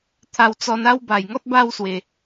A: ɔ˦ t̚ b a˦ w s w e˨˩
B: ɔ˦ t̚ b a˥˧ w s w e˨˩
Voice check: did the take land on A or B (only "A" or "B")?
B